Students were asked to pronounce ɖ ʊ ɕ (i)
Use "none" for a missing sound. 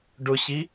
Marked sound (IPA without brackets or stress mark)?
i